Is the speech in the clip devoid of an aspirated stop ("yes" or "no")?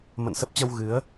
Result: yes